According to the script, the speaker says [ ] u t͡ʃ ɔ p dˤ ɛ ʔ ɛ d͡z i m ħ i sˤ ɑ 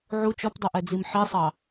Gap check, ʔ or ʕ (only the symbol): ʕ